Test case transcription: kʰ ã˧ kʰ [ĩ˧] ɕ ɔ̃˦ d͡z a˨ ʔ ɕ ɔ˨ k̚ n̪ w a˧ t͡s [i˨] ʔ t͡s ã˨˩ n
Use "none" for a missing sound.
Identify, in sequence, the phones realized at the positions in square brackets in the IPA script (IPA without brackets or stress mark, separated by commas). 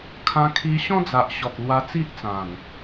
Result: i˧, i˦